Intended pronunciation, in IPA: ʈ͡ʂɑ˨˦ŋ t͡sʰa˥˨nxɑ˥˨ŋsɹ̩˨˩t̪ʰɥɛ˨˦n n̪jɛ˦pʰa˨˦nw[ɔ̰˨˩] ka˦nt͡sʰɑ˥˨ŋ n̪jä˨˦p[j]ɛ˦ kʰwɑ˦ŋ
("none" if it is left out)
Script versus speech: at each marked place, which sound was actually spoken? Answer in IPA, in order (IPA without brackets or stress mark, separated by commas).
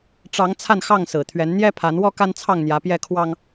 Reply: ɔ˦, j